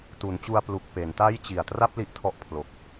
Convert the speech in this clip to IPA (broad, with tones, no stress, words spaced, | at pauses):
tu˩˦nt͡ɕu˧a̯ plu˨˩k̚ pe˩˦nta˥˩j t͡ɕi˨˩a̯tra˥˩p̚ li˦˥ʔtʰɔ˦˥ʔpʰlo˨˩k̚